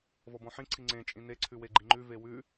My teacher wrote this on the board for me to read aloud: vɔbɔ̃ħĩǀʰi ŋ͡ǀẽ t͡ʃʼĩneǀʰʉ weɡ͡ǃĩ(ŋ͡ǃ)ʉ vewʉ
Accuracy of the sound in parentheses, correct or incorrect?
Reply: correct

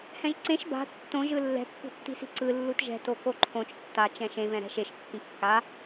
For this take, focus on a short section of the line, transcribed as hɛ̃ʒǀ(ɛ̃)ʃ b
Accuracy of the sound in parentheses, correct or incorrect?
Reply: incorrect: ẽ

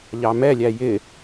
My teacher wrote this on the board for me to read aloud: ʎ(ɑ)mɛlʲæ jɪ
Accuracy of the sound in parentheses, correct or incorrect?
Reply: correct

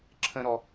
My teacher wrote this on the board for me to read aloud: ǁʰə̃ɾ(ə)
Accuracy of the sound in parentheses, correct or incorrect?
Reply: incorrect: ɔ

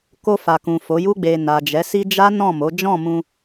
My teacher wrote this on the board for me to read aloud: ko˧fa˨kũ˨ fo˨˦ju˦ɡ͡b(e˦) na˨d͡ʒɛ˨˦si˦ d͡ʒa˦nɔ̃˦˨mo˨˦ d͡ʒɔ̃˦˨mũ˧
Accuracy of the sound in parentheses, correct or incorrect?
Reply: incorrect: e˧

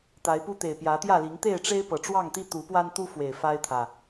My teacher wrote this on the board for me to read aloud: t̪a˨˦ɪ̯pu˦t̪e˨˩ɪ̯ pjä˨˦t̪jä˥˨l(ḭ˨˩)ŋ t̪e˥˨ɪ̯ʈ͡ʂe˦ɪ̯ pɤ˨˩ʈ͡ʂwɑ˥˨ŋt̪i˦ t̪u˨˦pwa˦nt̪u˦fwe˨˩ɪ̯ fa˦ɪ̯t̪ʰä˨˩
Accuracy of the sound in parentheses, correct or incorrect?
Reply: incorrect: i˨˦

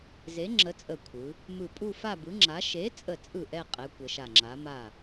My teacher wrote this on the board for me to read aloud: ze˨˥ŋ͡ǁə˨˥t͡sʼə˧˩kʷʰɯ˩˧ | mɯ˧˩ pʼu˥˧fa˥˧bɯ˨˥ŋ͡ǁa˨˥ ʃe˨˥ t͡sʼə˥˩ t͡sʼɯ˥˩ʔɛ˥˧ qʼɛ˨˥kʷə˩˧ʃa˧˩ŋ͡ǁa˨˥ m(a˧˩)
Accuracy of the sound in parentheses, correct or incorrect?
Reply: incorrect: a˥˩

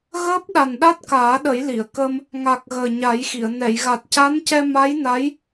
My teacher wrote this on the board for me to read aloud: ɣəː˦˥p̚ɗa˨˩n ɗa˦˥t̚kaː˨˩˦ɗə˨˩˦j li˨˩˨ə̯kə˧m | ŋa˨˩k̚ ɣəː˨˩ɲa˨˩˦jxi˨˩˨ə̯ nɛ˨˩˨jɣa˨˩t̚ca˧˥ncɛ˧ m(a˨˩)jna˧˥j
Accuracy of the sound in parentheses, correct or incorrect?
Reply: incorrect: a˧˥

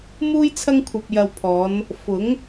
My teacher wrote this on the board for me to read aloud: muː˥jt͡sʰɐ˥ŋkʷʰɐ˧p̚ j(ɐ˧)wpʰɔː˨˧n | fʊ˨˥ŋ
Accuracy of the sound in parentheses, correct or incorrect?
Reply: correct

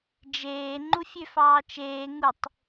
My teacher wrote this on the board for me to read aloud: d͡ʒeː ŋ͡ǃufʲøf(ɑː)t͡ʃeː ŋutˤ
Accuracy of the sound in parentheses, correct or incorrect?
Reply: correct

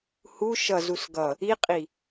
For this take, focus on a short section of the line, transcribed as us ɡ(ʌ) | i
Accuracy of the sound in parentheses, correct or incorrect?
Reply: correct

